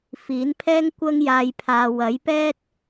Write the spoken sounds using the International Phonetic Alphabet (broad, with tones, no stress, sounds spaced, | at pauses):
f iː˨˥ n pʰ ɛː˥ ŋ kʷ ɐ˥ ŋ j aː˧ j pʰ aː˨ w ɐ˨˥ j p ɛː˥ t̚